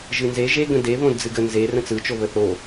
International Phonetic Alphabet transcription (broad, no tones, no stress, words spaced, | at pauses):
ʒɨnze ʒe ɡə̃de βõdd͡zɨɡə nze rə̃t͡sɯ t͡ʃoβəθo